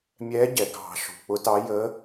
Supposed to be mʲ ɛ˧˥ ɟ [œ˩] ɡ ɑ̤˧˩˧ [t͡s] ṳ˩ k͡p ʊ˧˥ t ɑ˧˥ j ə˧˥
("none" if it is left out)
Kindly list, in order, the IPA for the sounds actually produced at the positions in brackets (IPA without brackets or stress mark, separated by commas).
ɛ˩, ʃ